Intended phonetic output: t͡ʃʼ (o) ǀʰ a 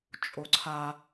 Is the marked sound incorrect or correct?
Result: correct